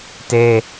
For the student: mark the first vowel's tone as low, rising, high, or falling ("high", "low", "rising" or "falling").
high